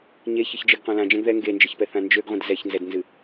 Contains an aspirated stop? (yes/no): no